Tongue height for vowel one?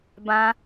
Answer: low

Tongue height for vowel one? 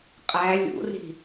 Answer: low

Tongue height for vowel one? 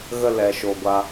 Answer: mid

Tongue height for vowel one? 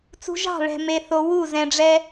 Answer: high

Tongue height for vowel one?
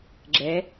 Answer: mid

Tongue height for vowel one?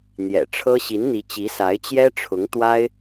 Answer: mid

